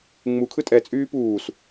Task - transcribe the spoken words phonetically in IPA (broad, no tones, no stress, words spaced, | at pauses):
ŋ͡mukʰɯ tʼɛt͡sʼyː puːs